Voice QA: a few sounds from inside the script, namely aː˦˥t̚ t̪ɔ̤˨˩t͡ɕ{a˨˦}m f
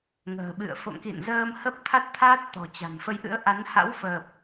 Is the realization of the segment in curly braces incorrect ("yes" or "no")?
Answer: yes